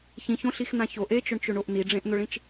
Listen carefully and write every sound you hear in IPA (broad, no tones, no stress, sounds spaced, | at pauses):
ç ĩ ç õ ɬ i x n ã ç o ʔ e t͡ʃ ʊ ɳ t͡ʃ ø ɳ o ʔ n i ɖ͡ʐ ẽ ʔ n̪ ʊ ɭ ĩ t͡ʃ